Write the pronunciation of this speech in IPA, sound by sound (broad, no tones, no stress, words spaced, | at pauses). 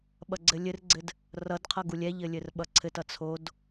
ɓʌɡ͡ǀɘlʲɘrɡ͡ǀɘd | rʌdqʰʌ ɡulʲɛʎɘ lʲɘrɓʌǀʰɘtʌ t͡sʰod